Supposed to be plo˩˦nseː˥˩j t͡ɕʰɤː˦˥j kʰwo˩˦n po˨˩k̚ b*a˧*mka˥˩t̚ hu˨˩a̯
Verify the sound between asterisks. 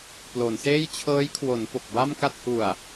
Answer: incorrect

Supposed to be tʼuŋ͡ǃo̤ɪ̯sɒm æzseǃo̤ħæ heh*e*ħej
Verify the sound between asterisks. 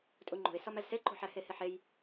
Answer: correct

